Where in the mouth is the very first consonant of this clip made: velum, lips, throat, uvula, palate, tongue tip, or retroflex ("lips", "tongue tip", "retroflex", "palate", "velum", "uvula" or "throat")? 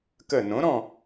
velum